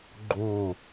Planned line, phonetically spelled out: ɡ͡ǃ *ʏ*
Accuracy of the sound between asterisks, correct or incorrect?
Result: incorrect